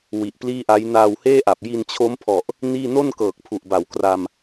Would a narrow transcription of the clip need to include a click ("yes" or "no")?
no